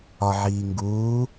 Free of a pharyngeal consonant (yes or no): no